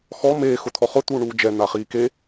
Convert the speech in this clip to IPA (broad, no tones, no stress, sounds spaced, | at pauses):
x ɔ m eː x ʊ t̪ʰ ɔ χ ʊ t̪ uː ɳ uː d͡ʒ ɛ n̪ a χ iː k e